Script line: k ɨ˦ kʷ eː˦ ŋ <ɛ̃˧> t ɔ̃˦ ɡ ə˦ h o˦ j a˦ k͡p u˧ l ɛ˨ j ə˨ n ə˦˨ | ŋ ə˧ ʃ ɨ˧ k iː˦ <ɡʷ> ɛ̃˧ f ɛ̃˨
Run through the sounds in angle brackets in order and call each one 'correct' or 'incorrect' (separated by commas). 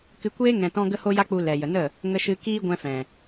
correct, correct